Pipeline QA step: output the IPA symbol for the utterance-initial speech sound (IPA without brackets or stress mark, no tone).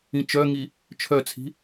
ĩ